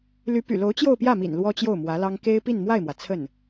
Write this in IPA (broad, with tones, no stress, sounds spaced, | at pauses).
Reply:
l y˧˥ p y̰˨˩ l o˧˥ ʊ̯ t͡ɕ j o˥˧ ʊ̯ p j ä˥˩ m ḭ˨˩ n l w ɔ˥ t͡ɕ j o˥˩ ʊ̯ m w ä˧˥ l ɑ˥ ŋ k e˥ ɪ̯ p i˥˧ n m w a˥˩ ɪ̯ m w ä˩ t͡sʰ ə˥˩ n